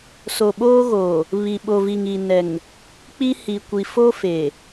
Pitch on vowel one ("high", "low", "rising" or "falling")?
low